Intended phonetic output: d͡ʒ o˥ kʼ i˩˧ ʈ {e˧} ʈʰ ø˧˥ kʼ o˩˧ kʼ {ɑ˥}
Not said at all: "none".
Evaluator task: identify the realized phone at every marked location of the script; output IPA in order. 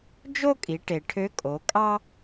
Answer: e˩, ɑ˥

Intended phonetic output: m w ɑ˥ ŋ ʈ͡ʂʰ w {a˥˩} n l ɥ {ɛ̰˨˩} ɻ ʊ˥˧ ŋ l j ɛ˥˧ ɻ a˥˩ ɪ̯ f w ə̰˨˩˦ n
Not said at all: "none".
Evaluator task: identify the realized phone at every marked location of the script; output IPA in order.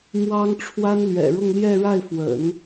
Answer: a˥, ɛ̰˨˩

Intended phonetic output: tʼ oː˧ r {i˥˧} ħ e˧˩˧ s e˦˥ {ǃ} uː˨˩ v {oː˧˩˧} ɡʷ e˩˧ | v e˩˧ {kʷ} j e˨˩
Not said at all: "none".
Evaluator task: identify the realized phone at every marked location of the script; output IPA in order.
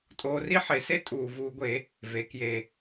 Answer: i˥˧, tʼ, uː˧˩˧, k

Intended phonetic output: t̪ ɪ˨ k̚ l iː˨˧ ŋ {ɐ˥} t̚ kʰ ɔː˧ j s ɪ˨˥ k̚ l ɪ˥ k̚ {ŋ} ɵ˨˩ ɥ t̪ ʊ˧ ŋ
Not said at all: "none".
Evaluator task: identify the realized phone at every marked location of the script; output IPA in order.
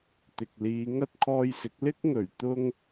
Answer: ɐ˥, ŋ

